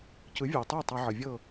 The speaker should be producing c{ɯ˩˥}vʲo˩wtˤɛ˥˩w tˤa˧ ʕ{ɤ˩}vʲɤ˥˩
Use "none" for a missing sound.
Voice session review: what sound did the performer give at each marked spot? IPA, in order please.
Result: ɯ˩˥, ɤ˩

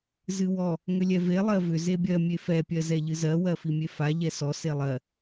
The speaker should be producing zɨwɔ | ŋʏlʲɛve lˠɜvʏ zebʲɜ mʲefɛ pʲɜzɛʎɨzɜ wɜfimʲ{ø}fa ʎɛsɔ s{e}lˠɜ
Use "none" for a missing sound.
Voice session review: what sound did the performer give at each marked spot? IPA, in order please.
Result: e, e

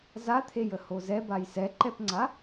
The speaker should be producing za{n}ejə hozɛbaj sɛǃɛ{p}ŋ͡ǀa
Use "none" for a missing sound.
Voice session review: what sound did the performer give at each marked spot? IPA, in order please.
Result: t̪ʰ, p

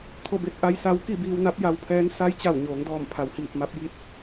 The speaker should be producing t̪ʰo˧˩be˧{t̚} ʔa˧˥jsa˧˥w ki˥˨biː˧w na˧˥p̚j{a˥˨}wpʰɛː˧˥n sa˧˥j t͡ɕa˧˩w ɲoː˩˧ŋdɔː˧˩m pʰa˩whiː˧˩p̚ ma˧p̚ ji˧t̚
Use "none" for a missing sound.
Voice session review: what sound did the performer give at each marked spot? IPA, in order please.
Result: t̚, a˧

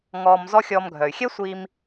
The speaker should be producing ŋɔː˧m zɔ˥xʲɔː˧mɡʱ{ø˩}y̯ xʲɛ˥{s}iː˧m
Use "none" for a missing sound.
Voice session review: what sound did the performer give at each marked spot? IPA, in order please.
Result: œ˩, sʷ

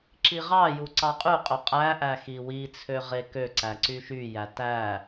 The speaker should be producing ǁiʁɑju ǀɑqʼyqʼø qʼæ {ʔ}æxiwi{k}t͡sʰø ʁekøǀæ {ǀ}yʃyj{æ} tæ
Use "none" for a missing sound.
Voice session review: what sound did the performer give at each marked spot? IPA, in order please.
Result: ʔ, none, ǀ, æ

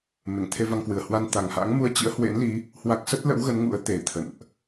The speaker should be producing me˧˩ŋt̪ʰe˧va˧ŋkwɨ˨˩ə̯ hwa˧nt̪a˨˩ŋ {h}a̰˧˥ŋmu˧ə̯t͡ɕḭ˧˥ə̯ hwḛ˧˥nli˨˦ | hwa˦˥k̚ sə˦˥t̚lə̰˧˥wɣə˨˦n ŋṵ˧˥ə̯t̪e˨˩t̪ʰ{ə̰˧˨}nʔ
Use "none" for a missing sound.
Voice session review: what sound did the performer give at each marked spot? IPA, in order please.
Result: h, ə̰˧˨

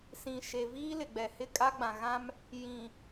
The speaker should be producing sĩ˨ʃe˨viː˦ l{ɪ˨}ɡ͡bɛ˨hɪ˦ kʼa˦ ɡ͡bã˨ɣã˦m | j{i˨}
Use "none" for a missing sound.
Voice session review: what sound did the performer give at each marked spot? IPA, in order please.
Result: ɪ˨, ĩ˨

